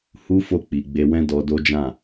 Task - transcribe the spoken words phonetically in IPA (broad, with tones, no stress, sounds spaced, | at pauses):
h u˦ f o˦˨ k͡p i˨ ɡ͡b e˧ w ɛ̃˦ d ɔ˧ d o˦ d͡ʒ ã˦˨